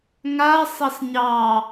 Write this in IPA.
ŋa sˤɑsɲɑ

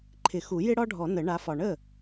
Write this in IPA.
ǃʰɪ˨˩˦xu˨˩˦ jɪ˥ɽɒ˥ɖʱɔ˨˩˦ nə˨˩˦ɳa˨˦fɒ˨ ɳə˥˩

